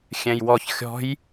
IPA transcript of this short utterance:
xʲ ɛ̃ j w ɔ ç xʲ ɔ̤ j

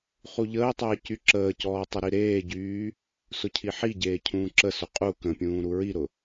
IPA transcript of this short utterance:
χ u ʎ əː tˤ əː c y ǁ əː c ɔː tˤ ə ɾ i ɾ eː ɟ yː | s ʊ cʰ i ħ i ɟ eː cʰ ũː ǁ ə s ʊ qʼ u k ə̃ pʲ ũː ɾ u ɹ i ɾ ʊ

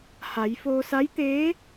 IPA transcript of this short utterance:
h a˩˧ j f oː˧ s a˧˥ j t̪ eː˧˥

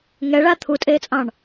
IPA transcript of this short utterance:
ŋ ɛ ɭ a t̪ʰ u tʼ eː t͡sʼ ɑ̃ ɳ

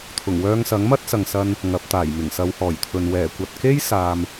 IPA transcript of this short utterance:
t̪ʰ ʊ˨˩ ŋ w œː˧ ŋ s ɐ˨˥ ŋ m ɐ˥ t̚ s ɐ˨ ŋ s ɐ˧ n | ŋ ɐ˨˥ p̚ t̪ aː˨˩ j m ɪ˨˩ ŋ s ɐ˨˧ w h ɔː˨˩ j t̪ʰ ɵ˨ n w ɛː˨˩ kʷ ɐ˨ t̚ k e˥ j s aː˨ m

